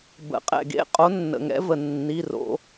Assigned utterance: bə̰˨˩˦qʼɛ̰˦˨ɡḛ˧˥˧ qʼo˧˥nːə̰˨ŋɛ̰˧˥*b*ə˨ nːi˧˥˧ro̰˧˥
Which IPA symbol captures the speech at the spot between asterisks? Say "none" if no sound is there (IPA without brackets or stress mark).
v